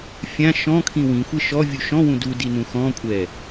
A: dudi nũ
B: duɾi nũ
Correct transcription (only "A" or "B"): A